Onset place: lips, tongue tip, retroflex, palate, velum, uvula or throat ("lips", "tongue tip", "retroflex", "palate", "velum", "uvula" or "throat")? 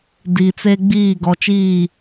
tongue tip